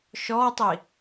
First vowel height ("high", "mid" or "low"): mid